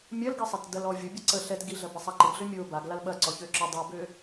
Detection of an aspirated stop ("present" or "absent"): absent